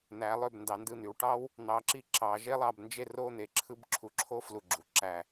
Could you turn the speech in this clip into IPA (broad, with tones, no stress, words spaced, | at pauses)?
n̪æ˩˧lˠø˧˩b ndɑ˩˧ndɯ˧˩n̪y˩˧wʈɑ˥w | n̪ɑ˩˧ǁi˧ ǁɑ˩˧ ʒe˥lˠɑ˧bnd͡ʒe˥˧ ro˥˧ n̪e˧˩ǁʰɯ˥˧bǁʰu˧ǁʰo˥ flu˧˩ɡ͡ǁu˩˧ǁæ˧˩